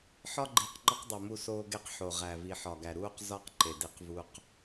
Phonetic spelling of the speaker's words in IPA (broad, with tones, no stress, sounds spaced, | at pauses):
ħ ɒ˦ ɡ͡ǃ iː˨ q ŋ͡ǃ ɒ˦ q dˤ o˨ m u˦ s oː˦ ɡ e˦ q ħ o˨ ʁ æ˨ v i˨ ħ ɒ˨ ɡ æ˨ ɾ uː˦ q z ɒ˦ q ǃ e˨ d i˦ q v u˦ q